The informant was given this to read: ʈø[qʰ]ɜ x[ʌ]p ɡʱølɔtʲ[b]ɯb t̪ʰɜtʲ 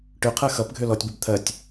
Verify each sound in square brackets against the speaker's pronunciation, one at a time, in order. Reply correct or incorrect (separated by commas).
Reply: correct, correct, correct